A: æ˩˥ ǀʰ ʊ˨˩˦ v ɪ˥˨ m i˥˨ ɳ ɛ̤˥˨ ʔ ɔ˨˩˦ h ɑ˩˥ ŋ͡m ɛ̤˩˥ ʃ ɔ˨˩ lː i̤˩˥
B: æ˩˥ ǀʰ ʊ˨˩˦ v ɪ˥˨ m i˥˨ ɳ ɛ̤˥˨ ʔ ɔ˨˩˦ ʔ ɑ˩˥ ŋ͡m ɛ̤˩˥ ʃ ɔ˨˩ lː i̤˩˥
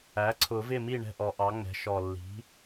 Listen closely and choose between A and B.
B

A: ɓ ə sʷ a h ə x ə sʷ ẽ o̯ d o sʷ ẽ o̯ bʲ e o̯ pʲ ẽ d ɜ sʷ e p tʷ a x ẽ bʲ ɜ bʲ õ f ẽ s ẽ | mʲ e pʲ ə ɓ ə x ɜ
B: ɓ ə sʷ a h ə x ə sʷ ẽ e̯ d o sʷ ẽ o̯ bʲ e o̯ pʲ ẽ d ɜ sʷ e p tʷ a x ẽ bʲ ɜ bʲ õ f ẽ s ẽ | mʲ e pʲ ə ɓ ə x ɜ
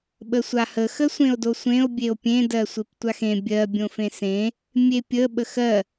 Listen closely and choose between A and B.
A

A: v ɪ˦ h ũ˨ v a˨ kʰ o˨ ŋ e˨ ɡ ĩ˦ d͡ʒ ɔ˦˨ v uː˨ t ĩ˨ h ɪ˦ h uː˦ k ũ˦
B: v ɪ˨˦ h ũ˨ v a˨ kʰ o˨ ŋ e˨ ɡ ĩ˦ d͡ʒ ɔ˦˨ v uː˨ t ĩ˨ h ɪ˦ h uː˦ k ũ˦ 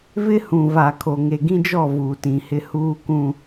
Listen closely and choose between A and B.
A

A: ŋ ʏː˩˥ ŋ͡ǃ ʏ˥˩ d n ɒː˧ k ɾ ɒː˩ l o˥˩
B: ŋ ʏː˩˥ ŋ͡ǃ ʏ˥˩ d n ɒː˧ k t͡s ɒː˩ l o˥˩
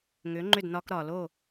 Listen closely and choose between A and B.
A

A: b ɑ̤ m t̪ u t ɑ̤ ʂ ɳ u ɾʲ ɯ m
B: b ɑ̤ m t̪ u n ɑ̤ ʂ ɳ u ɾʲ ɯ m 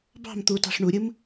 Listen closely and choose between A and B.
A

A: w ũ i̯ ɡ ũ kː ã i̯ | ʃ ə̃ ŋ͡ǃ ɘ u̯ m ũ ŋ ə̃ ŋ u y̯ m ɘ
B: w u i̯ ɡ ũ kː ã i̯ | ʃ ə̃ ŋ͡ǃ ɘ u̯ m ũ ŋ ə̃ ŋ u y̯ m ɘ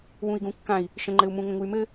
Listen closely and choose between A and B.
A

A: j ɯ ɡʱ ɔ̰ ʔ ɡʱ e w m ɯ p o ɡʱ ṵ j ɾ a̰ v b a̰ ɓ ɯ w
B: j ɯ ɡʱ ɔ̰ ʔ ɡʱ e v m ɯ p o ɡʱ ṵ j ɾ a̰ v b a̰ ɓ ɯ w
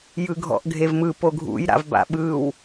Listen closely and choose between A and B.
B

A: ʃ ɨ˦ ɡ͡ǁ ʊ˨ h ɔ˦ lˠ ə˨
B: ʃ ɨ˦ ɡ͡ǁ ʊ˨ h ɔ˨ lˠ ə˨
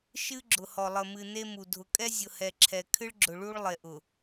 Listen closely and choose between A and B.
B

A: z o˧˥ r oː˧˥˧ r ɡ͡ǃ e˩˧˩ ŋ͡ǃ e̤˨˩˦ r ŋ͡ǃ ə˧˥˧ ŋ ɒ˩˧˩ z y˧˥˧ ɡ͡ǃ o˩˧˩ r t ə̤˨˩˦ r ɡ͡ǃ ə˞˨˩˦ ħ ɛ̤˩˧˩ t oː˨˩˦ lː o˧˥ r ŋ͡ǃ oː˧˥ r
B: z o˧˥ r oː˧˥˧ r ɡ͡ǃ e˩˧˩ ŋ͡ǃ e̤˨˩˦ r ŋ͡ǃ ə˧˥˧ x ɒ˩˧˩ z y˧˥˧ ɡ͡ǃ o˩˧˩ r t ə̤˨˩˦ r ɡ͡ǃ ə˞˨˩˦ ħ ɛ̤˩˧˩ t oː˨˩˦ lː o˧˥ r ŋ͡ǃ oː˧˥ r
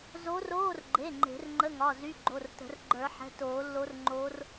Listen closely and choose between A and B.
A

